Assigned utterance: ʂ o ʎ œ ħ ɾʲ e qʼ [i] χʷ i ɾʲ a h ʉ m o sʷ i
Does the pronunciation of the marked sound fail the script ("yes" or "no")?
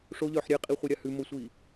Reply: no